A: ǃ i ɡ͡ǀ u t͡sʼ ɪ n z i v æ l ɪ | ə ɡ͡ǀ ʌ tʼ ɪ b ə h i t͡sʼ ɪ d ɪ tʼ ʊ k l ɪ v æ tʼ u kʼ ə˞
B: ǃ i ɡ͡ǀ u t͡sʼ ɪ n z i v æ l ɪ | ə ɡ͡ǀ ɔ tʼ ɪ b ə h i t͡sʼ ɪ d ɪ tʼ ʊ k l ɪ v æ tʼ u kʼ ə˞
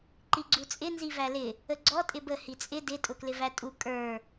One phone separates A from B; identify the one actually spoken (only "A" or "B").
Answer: B